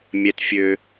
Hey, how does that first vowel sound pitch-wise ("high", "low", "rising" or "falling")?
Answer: high